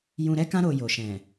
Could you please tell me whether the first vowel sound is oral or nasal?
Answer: nasal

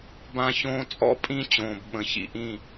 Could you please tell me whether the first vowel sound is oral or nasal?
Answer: nasal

